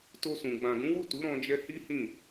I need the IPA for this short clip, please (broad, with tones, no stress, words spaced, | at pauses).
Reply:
to˧sũ˨ ɡ͡bã˨ɡũ˨˦wu˦˨ tu˨˦ɾɔ̃˧d͡ʒɛ˧ hi˦hĩ˦˨